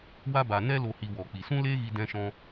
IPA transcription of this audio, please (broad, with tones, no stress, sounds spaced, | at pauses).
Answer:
w a˦ b a˧ n ɛ˦ l o˧ h i˧ w ɔ˨ k͡p i˨ s ũ˦ l eː˦ ɣ i˧ d ɛ̃˦ ʃ ɔ̃˦